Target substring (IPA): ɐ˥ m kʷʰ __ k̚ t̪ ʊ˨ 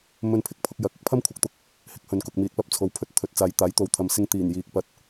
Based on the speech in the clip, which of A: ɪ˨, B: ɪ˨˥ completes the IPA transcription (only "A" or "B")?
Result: B